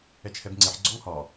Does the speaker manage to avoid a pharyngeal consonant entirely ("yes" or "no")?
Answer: no